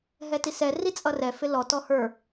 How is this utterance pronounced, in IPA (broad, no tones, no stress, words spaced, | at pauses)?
ɦɛtisɛ rit͡sʼʌrɛ fɪlɔ tɔhə˞